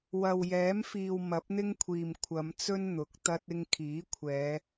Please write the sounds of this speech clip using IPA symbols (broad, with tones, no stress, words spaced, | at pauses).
wɐ˨wjɛː˨˥mfiː˨w mɐ˨˥p̚n̪ɪ˥ŋkʷʰiː˨m kʷʰɐ˨˧mt͡sɵ˥n n̪ʊ˨˥k̚ t̪ɐ˥t̚ɪ˥ŋ kʰiː˨˥kʷʰɛː˨˧